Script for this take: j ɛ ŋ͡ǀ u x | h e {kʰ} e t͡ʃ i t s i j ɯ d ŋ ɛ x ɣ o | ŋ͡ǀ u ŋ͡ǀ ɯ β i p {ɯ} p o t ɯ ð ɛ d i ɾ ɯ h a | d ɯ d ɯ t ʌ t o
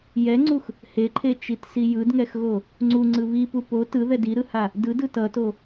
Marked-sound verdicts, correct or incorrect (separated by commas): incorrect, incorrect